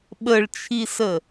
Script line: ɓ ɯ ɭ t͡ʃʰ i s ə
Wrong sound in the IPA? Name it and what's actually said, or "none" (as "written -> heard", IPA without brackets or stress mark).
ɯ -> ə